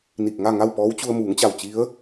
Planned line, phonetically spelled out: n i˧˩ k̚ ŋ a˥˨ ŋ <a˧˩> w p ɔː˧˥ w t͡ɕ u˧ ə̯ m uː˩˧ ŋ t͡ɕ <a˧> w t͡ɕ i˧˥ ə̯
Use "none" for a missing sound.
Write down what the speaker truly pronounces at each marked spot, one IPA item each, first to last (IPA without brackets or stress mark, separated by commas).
a˥˨, a˧˩